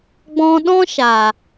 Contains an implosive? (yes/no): yes